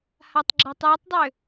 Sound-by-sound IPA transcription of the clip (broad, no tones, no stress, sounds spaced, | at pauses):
h a tˤ ɡ͡ǁ a tˤ j ə tˤ dˤ ø